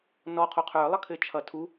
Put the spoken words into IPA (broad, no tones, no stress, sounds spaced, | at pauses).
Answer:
n ɔ qʰ o qʰ ə˞ lˠ ʌ kʰ ɘ t͡ʃʰ ʌ tʰ u